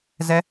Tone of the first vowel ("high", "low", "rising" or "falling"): high